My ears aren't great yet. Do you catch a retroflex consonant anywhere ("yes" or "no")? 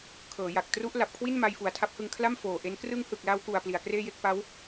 no